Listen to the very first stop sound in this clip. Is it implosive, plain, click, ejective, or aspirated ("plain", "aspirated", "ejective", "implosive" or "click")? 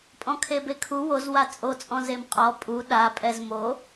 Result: ejective